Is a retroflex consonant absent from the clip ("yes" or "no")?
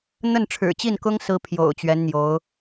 no